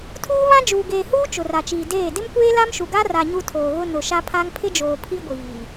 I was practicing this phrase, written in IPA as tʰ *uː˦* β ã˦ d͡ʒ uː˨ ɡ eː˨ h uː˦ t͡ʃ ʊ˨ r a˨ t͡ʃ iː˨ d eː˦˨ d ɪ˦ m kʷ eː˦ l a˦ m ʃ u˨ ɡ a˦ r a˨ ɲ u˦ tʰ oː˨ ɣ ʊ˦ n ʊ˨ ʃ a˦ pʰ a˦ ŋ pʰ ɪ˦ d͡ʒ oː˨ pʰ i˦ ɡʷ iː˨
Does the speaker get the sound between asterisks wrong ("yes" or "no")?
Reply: no